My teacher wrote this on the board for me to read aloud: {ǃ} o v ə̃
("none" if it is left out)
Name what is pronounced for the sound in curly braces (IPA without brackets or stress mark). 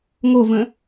ŋ